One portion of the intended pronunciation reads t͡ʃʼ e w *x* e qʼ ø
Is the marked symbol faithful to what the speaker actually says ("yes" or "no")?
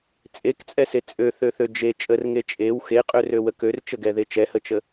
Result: yes